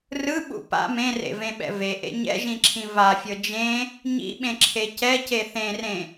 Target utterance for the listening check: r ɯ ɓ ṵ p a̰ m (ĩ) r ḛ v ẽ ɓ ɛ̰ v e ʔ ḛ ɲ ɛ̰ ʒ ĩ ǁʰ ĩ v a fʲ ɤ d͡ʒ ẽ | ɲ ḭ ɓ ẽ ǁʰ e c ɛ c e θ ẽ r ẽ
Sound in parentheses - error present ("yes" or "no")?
yes